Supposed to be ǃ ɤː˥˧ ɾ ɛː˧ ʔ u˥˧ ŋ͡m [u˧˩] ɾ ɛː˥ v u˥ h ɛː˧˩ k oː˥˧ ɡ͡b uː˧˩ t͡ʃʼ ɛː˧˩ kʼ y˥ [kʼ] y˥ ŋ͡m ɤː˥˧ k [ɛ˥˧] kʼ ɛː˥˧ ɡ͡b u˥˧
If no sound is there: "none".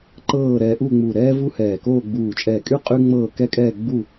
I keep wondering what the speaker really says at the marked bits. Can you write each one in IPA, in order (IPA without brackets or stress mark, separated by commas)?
u˧˩, qʼ, ɛ˥˧